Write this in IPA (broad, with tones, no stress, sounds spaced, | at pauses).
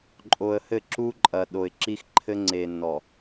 ǃʼ o˨ ə̯ h ɘ˦˨ ǁ u˦ ǃʼ ɐ˨ ɗ o˨ ɪ̯ ǁ i˦ x ǃʰ ɘ˦ ŋ͡ǀ e˨ nː ɔ˨